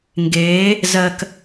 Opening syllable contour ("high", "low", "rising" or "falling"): rising